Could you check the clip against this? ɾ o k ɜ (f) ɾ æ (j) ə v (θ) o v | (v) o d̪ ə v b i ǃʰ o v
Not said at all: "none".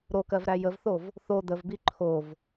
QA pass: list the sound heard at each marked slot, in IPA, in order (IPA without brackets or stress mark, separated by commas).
v, j, θ, θ